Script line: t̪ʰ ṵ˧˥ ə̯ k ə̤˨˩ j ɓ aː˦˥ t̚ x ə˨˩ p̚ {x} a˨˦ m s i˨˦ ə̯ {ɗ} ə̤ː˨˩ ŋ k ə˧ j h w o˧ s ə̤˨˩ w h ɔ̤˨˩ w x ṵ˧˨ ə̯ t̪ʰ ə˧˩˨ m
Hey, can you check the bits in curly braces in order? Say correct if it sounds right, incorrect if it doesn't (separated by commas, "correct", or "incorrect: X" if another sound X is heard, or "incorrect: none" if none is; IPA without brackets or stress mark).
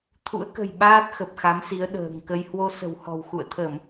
correct, correct